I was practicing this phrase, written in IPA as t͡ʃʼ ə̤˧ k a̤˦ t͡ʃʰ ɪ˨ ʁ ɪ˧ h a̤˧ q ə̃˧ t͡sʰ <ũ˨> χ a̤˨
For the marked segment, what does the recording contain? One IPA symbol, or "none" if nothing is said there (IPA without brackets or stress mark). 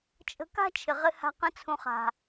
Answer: ũ˨